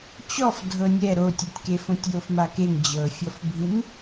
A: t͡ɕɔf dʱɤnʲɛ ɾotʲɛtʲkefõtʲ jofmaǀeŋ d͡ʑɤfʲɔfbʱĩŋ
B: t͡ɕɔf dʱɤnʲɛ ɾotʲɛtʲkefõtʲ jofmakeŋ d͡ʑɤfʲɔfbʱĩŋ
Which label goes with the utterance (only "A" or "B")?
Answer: B